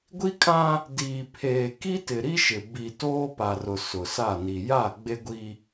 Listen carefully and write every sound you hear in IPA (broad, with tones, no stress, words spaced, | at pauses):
ɡʷi˦kʼã˦ | diː˨pʰeː˨ ki˦tɪ˨ɾi˦ʃɪ˨ bi˨ toː˦pa˨rʊ˨ sʊ˨sa˦˨ni˨ ja˦˨ ɡ͡be˦ɡʷi˦